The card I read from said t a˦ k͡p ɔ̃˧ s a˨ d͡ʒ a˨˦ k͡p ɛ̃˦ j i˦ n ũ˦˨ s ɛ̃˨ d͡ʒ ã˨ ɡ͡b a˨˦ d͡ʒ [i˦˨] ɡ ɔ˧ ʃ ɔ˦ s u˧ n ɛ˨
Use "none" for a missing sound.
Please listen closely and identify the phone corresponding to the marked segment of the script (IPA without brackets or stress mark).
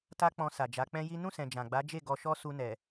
e˦˨